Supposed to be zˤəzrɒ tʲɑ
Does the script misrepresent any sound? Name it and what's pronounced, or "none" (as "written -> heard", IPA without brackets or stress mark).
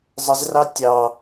ɒ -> ɑ